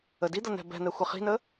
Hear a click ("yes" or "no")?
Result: no